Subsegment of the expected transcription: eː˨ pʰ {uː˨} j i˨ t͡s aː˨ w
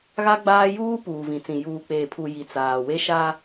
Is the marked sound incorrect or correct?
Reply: incorrect